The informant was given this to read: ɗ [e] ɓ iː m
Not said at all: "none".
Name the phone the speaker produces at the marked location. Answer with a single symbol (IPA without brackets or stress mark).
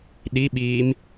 i